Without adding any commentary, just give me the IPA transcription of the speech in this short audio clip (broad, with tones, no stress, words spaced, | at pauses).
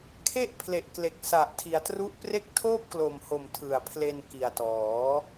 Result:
kʰe˥˩ʔpʰle˨˩ʔkle˨˩k̚sa˨˩ʔ tʰi˩˦a̯tru˦˥ʔpre˥˩k̚ tʰoː˥˩p̚klo˨˩mho˨˩m tʰɯ˨˩a̯pʰle˧nki˨˩a̯tɔː˩˦